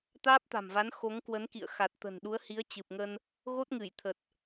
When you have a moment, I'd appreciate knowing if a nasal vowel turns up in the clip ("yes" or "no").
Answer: no